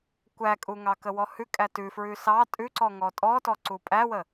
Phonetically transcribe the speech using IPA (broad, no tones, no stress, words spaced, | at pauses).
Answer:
kʷækʼuŋɑkə wɔhʉ kʼætʉfɹʉ sɑ tʼʉǀɔ ŋɔtʼɔtɔ ǀupʼæwə